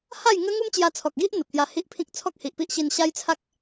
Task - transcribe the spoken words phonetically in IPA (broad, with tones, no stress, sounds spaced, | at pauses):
h a˥˧ j ŋ ə˦ ŋ u˦ m t͡ɕ j a˧ t͡sʰ ɔ˨ k̚ ɡ i˦ ʔ n̪ ə˨ p̚ t̪ j a˧ h i˦ ʔ pʰ ĩ˦ k̚ t͡sʰ ɔ˦ k̚ h i˨ ʔ p i˦ ʔ ɕ i˧ n ɕ a˦ j t͡sʰ a˦ k̚